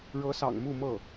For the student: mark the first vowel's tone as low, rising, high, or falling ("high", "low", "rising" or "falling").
rising